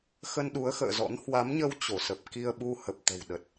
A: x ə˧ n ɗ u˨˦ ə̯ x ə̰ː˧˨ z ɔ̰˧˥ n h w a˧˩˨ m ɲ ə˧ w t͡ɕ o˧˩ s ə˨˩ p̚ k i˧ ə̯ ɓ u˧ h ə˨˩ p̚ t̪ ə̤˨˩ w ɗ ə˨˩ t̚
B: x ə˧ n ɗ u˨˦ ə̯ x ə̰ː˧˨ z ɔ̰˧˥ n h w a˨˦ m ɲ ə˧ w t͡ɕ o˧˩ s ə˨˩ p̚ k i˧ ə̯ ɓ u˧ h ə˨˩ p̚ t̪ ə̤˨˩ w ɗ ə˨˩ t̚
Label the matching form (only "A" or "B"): B